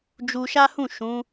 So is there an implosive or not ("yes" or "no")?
no